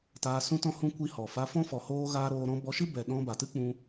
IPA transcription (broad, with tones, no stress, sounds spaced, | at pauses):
t aː˧ s ũ˦ t ɔ̃˦ h ũ˧ kʷ i˧ h ɔ˨ f a˧ f ɔ̃˦ f ɔ˧ h oː˦ ɣ aː˦ ɾ oː˧ ɾ ɔ̃˧ b ɔ˧ ʃ ɨ˦ b ɛ˨ ɗ ɔ̃˧ b a˨ t ɨ˦ k͡p ũ˧